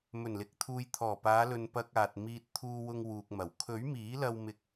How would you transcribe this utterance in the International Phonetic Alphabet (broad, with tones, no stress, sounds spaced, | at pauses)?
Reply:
m ɵ˨˩ n l ɪ˨ k̚ t̪ʰ uː˨ j t̪ʰ ɔː˨˩ p aː˨˧ l ɵ˨ n p ɐ˧ k̚ aː˨ t̚ m iː˧ t̚ t̪ʰ uː˧ w ʊ˧ ŋ w uː˨ k̚ m ɐ˨˩ w kʰ ɵ˨˥ ɥ m iː˨˥ l ɐ˧ w m ɪ˧ k̚